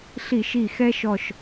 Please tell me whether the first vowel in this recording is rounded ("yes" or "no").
no